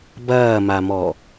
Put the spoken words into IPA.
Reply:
b ɐː m a m ɔ

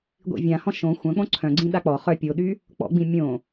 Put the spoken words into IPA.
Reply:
ɡʷ ḭ vʲ ã h ɔ̃ ʃ õ xʷ œ̃ k͡p õ ǀʰ œ̃ ɡ͡ǀ ĩ ɗ a k͡p ɔ χ œ pʲ o ɗ y | k͡p ɔ̰ ɡ͡b ĩ mʲ õ

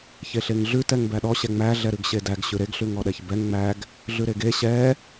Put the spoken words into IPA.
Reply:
ç e ɬ e ŋ ɮ ʉ t ɛ ŋ b æ ɗ ɔ ɕ ɛ ŋ͡m æ ɮ ɛ ɾ ʉ ɡ ɕ e d æ ɡ ɕ ʉ ɾ e ɡ ɬ ʉ ŋ ɔ ɗ ɛ ç b ɛ ŋ ŋ͡m æ ɡ | ɮ ʉ ɾ e ɡ e ɕ ɛ

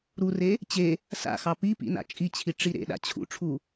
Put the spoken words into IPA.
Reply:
ɾ u r e | t͡ɕ e | s a̰ x ɑ p i p ḭ n a̰ t͡ʃʼ i t͡ɕʰ i ʈ͡ʂ i ɾ ḛ ɗ a̰ t͡ɕʰ ṵ ʈ͡ʂʰ u

